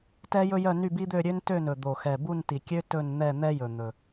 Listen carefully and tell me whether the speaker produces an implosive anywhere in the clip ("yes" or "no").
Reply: no